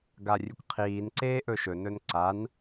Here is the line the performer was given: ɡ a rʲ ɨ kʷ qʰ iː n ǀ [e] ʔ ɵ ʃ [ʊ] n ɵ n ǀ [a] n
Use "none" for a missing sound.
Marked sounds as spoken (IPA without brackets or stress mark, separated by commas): eː, ɵ, a